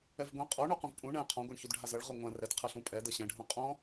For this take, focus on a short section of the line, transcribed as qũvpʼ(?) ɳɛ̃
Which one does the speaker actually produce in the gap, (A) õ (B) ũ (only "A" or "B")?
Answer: B